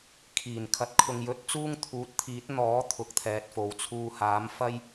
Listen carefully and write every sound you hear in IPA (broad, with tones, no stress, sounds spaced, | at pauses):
kʰ iː˨˩ n kʰ ɐ˨ t̚ kʰ ʊ˨ ŋ j ɵ˨˥ t̚ t͡s uː˥ ŋ t̪ʰ uː˨˥ t̚ t̪ʰ iː˨˥ t̚ n̪ ɔː˨˥ t̪ʰ ʊ˨ k̚ t̪ʰ ɛː˨ t̚ f o˨ w t͡sʰ uː˧ h aː˨˥ m f ɐ˥ j